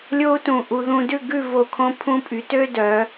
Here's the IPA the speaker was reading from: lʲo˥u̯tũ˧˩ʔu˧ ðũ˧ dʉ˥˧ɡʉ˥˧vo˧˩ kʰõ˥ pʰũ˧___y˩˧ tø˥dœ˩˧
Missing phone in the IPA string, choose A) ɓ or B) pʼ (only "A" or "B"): B